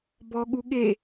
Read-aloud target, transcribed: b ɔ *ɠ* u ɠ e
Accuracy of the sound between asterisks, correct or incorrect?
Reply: correct